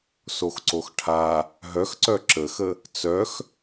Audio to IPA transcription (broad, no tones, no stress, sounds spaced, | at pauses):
s o x ǀ o x ʈʰ a | ɦ œ x ǀ œ ǁ ə x ə | t͡s œ x